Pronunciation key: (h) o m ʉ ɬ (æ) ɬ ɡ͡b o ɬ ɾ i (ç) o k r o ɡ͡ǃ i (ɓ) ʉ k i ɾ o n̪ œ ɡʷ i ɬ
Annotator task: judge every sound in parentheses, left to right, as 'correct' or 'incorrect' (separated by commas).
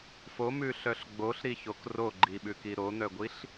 incorrect, incorrect, correct, correct